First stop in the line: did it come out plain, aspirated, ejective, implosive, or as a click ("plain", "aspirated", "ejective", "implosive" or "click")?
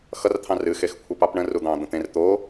aspirated